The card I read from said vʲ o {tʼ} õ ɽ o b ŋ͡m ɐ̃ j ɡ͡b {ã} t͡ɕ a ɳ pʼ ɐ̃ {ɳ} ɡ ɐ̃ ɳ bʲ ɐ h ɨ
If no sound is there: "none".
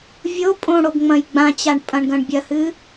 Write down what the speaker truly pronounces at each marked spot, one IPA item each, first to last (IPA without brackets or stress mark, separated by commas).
pʼ, ã, ɳ